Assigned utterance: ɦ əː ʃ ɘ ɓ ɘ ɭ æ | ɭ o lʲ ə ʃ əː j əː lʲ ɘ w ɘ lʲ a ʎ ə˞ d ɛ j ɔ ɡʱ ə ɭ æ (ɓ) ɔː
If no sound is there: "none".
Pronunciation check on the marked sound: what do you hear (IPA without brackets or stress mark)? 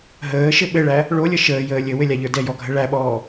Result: ɓ